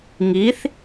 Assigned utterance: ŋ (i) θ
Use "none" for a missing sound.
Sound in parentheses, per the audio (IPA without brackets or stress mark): i